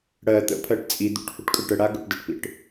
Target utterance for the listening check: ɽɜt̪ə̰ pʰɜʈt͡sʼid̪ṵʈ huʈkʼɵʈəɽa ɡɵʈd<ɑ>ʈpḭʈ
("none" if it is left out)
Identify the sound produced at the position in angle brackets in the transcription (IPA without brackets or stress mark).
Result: ə